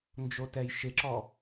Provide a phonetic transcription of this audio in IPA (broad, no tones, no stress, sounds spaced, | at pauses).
n d͡ʒ o t ɛ j ʃ ɪ ǁ ɔ